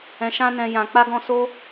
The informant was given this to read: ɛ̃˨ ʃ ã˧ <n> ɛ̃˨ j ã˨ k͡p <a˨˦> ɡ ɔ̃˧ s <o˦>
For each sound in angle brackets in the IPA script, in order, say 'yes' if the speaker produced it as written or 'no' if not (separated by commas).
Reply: yes, no, yes